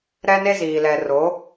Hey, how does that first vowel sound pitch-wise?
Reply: high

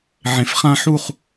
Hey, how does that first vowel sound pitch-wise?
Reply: low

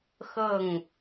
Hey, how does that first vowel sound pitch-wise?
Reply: falling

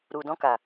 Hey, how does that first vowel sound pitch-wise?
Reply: low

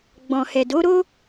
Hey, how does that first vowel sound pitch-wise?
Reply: low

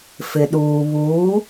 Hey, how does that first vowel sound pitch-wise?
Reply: low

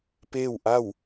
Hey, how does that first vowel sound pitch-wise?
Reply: falling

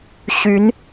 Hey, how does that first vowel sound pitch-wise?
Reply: rising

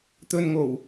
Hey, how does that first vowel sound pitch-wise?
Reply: low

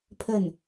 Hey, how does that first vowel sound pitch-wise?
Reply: falling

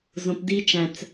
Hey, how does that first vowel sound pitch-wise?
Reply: low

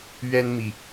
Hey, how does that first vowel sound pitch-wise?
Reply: high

